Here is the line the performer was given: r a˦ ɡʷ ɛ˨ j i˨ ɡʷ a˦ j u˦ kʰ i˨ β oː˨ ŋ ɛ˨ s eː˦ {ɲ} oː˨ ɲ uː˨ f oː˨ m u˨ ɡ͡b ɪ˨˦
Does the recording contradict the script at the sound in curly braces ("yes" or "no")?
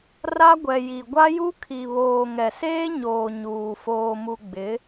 no